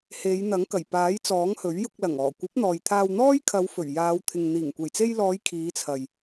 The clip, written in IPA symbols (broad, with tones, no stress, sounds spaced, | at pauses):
h e˨˧ j n̪ ɐ˨˥ ŋ k ɐ˨˩ j p aː˨˥ j t͡s ɔː˨˥ ŋ h ɵ˨˥ ɥ j ʊ˧ k̚ l ɐ˨˩ ŋ ɔː˨˩ kʷ ɐ˨˥ p̚ n̪ ɔː˨ j t̪ʰ aː˧ w n̪ ɔː˥ j kʰ ɐ˨˧ w f ɵ˨˩ ɥ j aː˨˧ w t̪ʰ ɪ˨ ŋ n̪ iː˨˩ ŋ kʷ e˨˩ j t͡s e˧ j l ɔː˨˧ j kʰ iː˨˧ t͡sʰ ɐ˨ j